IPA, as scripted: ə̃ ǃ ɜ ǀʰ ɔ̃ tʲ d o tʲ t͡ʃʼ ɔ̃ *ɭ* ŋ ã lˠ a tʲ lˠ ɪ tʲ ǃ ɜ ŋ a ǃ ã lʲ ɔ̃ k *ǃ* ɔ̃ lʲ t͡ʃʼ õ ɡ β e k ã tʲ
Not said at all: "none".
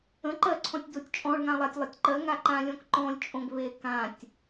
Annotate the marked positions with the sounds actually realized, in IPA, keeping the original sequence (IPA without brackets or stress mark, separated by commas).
ɭ, ǃ